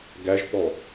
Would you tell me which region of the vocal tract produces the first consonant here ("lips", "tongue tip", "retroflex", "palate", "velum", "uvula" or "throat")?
velum